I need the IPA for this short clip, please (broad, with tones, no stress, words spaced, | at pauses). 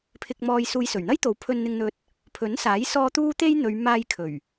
pʰɪ˧k̚mɔː˧j suː˨˧jsɵ˨˩ɥn̪ɐ˥jt̪o˨˥w pʰɵ˧nn̪ɪ˧ŋn̪ɵ˧t̚ | pʰɵ˨˥nsaː˨˥jsɔː˧ t̪uː˥t̪e˥jn̪ɵ˨˧ɥ maː˧jkʰɵ˨˩ɥ